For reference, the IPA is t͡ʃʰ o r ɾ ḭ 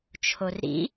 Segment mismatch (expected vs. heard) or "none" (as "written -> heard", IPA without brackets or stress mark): none